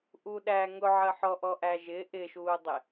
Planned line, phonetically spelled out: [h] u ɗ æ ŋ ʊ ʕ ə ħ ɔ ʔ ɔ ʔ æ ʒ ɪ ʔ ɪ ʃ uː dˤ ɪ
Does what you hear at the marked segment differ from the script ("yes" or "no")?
yes